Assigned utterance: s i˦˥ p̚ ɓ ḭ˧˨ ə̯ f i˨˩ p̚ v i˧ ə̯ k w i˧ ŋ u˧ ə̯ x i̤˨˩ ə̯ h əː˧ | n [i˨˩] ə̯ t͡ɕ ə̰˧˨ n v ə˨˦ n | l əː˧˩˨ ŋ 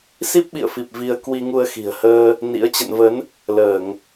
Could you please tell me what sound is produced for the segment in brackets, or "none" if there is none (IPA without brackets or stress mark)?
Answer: ḭ˧˥